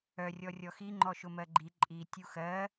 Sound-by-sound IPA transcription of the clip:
œ rʲ ɔ rʲ ɔ x i ŋ͡ǃ ɔ ʃ ʊ m ɜ ɡ͡ǃ i ǃʼ i tʲ u x ɜ

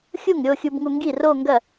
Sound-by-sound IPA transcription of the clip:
xʲ u˥˩ ŋ ɾʲ o˥˧ xʲ u˧ b ŋ u˧ ŋ ɡ i˥˩ r o˥˧ ŋ ɡ ɐ˥˩

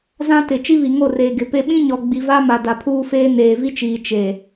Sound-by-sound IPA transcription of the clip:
z ã˦ t ɪ˨ t͡ʃ i˦ β i˨ ŋ o˦˨ r eː˨ ɡ ɪ˨ p e˦ ɓ ĩ˦ ɲ ɔ˨ ɡ͡b i˨ v a˦ m a˨ d a˨ pʰ uː˦ f eː˦ n eː˨ v i˦ t͡ʃ iː˨ t͡ʃ e˨

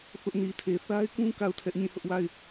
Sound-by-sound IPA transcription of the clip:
θ ʊ˦ ʔ n i˨ tʰ e˨ θ a˦ ɪ̯ k ũ˦ k a˦˨ ʊ̯ tʰ ɛ˦ ʔ ɲ ĩ˦˨ h ʊ˦ ʔ w a˦˨ ɪ̯

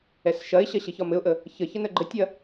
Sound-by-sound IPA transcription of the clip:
ɛ s ʃ ɐ ɪ̯ ɕ ɐ ɕ ɘ ç ɒ m ɘ ʊ̯ ʔ ə | ç ə ç ə n ə ɡ͡ǃ ɘ tʲ ɐ

